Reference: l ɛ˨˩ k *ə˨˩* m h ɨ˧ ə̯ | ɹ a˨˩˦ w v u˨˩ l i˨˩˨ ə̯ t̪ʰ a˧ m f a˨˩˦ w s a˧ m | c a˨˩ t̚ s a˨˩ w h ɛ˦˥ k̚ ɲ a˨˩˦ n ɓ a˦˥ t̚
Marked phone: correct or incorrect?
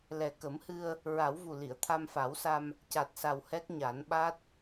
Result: incorrect